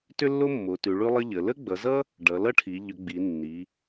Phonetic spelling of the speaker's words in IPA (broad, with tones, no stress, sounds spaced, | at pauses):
t ʏ˥ lː o˥ mː o˩˧ t ʉ˩˧ ɭ ʉ˥ lˠ ə˥ ʎ ə˩˧ l ə˥ ɡ͡b ʌ˩˧ z ʌ˥ | ɖ ʌ˩˧ l ʌ˥ ʈʰ i˩˧ ʎ ʏ˩˧ ɡ͡b i˩˧ nː i˩˧